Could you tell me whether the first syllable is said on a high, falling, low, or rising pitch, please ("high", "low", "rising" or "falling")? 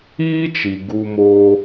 high